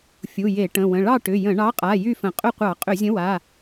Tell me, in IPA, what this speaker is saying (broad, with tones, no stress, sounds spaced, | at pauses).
fʲ u˩˧˩ j e˧˩˧ ʈ ə̃˩˧˩ w ə̃˩˧˩ ɭ ɑ˥˨ ʈ ʏ˩˧˩ j ə̃˧˩˧ ɳ ɑ˨˥ qʼ a˩˧˩ j y˥˨ f ə̃˧˩˧ qʼ ʏ˥˨ qʷ ɑ˧˩˧ qʼ ʏ˧˩˧ zʲ ə̃˨˥ w a˩˧˩